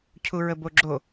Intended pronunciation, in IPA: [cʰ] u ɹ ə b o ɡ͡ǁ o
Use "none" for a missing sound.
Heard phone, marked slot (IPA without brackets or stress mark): cʰ